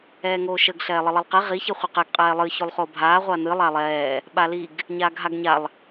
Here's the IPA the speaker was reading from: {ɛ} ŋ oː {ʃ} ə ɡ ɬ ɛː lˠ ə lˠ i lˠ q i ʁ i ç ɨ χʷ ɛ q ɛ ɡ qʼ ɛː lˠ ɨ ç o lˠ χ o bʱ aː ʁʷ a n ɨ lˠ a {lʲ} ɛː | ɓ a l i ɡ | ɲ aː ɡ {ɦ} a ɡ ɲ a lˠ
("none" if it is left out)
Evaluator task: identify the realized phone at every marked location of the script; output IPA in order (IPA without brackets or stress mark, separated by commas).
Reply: ɛː, ʃ, lˠ, ɦ